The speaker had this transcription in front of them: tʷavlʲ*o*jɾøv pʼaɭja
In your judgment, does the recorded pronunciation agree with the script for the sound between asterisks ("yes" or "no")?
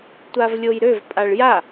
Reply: yes